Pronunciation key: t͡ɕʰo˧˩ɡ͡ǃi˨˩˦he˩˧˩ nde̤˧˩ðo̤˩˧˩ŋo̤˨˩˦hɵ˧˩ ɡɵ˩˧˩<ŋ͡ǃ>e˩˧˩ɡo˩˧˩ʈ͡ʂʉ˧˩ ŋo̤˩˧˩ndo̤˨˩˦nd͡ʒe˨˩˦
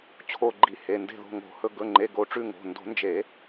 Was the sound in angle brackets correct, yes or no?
yes